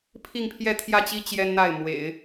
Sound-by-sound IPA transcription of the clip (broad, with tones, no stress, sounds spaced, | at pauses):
pʰ i˥˧ ŋ pʰ j ɛ˥˧ t̪ʰ j ä˥˩ t͡ɕ i˥ t͡ɕ j ɛ˥ n n̪ a˥˩ ɪ̯ m w ḛ˨˩˦ ɪ̯